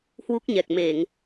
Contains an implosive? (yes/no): no